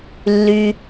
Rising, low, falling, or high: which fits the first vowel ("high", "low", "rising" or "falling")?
low